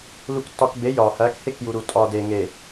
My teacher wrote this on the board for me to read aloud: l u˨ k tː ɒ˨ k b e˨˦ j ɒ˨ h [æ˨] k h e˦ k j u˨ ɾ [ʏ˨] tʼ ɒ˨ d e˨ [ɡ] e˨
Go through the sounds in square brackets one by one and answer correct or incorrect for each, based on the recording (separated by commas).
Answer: incorrect, incorrect, incorrect